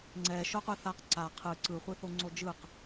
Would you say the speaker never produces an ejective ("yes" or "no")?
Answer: yes